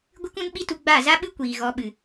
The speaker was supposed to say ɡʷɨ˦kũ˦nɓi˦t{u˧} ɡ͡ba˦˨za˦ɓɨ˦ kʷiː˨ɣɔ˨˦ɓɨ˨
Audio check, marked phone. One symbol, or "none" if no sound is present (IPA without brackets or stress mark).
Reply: u˧